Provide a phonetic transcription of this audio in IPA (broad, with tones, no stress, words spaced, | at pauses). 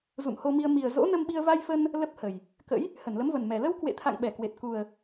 zṵ˧˨mho˧mi˧ə̯ mi˨˩ə̯ zo̰˧˥nə˧mɓi˧ə̯ va˧jfə˧n | lə˦˥p̚hə˨˩j | kə̰˧˥j | hə˧˩nlə˨˦mvə˨˩nmɛ˨˩ lə˧w kwḛ˧˨t̪ʰa̰˧˨ŋ ɓɛ˧˩kwe˨˩t̚ ku˨˩ə̯